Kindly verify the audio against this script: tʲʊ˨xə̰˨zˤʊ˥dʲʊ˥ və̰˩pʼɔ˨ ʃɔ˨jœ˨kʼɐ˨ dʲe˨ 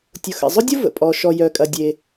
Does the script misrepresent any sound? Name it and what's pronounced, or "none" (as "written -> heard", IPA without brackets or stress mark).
none